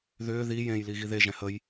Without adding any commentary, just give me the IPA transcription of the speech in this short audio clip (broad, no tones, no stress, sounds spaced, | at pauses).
ð ʏː ð i j ẽ j l i ɣ i ð e ʒ ɛ̃ h ə j